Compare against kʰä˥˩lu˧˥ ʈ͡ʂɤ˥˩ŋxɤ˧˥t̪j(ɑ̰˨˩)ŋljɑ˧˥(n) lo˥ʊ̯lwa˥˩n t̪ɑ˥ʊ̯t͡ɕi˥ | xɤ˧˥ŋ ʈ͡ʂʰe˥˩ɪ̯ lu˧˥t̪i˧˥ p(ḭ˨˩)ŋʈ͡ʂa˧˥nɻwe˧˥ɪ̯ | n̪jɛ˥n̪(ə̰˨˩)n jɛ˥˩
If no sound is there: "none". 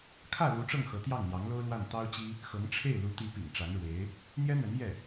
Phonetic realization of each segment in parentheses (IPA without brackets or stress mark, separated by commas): ɑ˥˩, ŋ, ḭ˨˩, ə˧˥